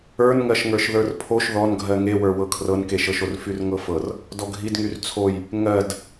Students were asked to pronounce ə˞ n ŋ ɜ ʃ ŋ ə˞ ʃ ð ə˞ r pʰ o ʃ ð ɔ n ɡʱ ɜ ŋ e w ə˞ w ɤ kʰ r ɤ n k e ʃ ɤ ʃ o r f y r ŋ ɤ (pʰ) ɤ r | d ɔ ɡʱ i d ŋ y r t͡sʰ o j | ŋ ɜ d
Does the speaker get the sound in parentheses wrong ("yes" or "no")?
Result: yes